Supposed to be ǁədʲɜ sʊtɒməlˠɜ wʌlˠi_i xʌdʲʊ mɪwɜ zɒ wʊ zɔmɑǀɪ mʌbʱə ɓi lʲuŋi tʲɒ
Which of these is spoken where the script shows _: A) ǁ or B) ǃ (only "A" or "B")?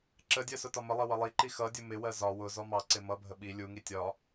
B